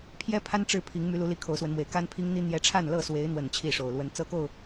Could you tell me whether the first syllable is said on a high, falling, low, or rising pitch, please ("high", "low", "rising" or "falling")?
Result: high